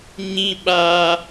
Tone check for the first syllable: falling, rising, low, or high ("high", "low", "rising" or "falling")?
low